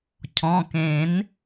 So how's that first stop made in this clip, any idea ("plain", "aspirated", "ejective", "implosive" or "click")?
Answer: aspirated